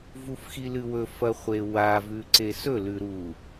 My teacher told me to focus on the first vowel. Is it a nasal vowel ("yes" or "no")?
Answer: no